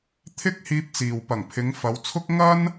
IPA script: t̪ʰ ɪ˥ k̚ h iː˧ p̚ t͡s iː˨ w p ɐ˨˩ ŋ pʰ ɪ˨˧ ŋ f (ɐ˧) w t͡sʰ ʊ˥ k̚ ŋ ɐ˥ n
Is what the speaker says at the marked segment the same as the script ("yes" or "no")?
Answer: no